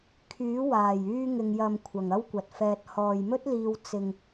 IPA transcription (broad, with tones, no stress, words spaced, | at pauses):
kʰyː˨˥ waː˨˩jyː˧ŋɪ˨ŋjɐ˨m kʷʰɐ˨˩ŋɐ˥wkʷɐ˨t̚fɛː˧t̚ hɔː˨jmɵ˥t̚liː˧w t͡sɪ˧ŋ